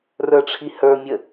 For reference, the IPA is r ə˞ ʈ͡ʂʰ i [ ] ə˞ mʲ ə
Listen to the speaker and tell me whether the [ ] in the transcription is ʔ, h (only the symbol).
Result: h